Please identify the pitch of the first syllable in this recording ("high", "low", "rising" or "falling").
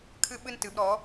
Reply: high